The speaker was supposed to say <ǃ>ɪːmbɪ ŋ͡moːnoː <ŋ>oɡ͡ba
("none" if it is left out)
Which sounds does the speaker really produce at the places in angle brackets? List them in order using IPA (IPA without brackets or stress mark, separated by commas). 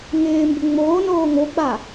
ŋ, ŋ